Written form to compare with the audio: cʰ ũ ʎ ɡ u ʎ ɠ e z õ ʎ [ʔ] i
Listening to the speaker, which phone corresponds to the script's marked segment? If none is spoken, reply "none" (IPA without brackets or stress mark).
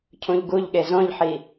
ħ